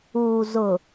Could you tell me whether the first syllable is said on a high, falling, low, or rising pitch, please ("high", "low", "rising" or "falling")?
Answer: low